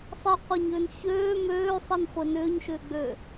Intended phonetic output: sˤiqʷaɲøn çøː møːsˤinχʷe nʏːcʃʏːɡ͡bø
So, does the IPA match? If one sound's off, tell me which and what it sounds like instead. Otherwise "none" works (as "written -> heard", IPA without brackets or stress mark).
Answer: c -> ɲ